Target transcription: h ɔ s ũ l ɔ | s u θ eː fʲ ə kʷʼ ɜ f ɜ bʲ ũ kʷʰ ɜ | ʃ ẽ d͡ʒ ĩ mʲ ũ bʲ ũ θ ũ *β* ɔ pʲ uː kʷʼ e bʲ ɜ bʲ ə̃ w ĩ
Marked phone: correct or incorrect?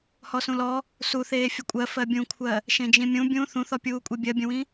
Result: incorrect